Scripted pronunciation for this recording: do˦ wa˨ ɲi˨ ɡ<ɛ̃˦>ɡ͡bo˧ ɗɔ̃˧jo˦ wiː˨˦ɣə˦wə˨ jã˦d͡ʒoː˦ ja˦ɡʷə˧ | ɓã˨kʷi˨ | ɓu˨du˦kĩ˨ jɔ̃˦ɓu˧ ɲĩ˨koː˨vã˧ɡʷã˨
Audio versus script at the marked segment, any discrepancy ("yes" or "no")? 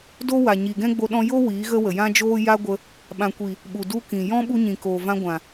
no